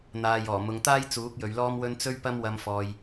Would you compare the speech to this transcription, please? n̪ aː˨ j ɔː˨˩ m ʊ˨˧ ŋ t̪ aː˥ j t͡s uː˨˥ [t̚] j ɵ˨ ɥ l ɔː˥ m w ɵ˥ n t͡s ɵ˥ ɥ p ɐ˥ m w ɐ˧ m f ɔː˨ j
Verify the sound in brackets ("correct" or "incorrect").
incorrect